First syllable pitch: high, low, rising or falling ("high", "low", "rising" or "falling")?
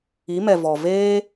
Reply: rising